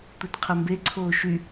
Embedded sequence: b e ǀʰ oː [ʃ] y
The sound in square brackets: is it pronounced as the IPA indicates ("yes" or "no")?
yes